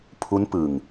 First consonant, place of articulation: labial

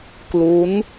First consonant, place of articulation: velar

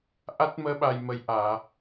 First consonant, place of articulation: glottal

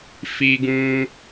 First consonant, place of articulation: labial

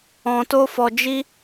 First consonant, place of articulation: alveolar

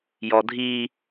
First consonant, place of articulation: palatal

